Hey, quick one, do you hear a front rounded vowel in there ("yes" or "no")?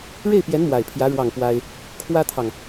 no